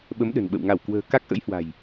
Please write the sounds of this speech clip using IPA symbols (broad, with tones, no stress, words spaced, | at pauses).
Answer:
ɓə˨˦m ɗə̤˨˩nɓə̰˧˨w ŋa˧˩wkwə̤ː˨˩ ka˦˥k̚ʔə̰˧˥jhwa̤˨˩j